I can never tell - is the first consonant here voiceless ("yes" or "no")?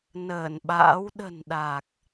no